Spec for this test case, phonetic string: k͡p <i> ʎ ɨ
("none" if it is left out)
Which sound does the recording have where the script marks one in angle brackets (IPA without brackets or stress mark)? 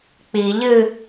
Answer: i